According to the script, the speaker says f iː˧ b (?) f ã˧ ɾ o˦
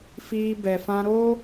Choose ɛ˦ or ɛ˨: ɛ˨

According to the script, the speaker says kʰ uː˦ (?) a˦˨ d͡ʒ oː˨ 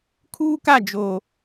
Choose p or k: k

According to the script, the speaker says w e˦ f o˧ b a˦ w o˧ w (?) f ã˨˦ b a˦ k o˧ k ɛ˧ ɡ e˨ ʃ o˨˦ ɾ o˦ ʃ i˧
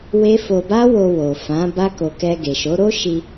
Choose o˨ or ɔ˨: o˨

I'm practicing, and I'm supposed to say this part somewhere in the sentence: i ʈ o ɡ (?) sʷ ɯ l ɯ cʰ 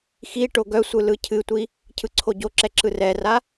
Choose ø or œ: œ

